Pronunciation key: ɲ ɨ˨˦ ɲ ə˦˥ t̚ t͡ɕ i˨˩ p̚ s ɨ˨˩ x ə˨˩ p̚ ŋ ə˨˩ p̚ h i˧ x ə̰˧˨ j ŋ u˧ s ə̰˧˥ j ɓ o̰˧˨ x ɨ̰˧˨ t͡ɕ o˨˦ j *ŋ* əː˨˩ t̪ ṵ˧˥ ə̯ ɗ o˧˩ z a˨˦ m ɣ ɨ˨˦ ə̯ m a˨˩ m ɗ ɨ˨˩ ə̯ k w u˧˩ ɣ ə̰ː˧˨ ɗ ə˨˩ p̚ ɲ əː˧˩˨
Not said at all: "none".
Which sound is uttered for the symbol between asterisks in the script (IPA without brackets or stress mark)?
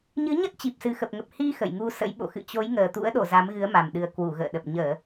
ŋ